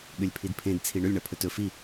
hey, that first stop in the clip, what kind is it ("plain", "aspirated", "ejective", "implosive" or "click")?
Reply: implosive